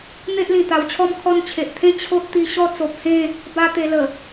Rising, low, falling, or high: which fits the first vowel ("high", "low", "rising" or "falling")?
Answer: high